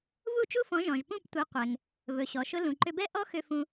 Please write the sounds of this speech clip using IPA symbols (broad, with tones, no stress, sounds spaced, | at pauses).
v u˥˩ t͡ʃ u˥ f ɔ̃˩˥ ʒ ɔ̃˩ ʒ p ũ˥˩ p tʷ ɛ˩˥ qʷ ɛ˩ ŋ | v ɵ˩ ɕ ɔ˩ ʃ ʊ˧ l ũ˩ ǃ ʏ˧ b ɛ˥ ʔ ɔ˥ x ʏ˧ f ũ˧